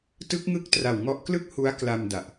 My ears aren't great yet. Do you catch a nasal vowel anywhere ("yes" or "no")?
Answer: no